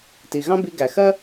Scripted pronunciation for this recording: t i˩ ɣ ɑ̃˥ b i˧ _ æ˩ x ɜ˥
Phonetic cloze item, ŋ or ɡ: ɡ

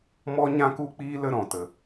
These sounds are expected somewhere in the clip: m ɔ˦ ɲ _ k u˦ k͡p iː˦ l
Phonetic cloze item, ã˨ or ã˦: ã˦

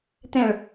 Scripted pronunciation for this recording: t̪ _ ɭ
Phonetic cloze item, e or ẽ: ẽ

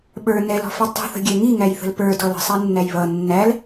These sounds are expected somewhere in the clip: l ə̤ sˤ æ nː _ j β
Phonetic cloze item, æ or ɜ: æ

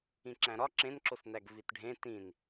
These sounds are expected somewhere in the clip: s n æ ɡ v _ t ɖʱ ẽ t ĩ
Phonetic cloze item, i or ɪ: i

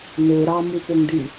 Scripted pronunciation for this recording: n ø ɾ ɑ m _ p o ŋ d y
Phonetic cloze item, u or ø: u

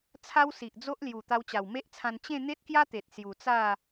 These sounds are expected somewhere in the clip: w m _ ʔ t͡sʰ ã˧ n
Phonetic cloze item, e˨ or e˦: e˦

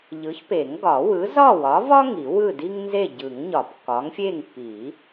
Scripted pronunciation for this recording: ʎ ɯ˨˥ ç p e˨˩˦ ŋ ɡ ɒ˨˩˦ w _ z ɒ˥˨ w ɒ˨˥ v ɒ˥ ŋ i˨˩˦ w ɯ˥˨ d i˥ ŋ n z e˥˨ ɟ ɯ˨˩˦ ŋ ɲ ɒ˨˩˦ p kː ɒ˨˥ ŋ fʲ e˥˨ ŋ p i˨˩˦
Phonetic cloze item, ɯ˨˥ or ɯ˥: ɯ˨˥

